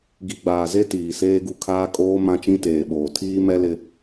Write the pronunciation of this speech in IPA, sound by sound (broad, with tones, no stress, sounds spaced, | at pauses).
ɡ i˨ ɡ͡b aː˨ z e˦ t iː˨ s eː˦ ɡ u˦ kʰ aː˦ kʼ oː˦ m ã˦ t͡ʃ ĩ˦ t eː˨ ɓ oː˨ tʰ iː˦ m ɛ˦ l ɪ˦